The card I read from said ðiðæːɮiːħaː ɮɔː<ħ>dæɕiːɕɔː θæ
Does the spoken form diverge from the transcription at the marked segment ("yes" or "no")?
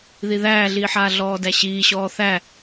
yes